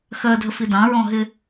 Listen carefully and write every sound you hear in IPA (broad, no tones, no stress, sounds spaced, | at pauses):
x ɜ dʱ ə f i d ɑ̃ ɹ ɔ̃ ɦ ɪ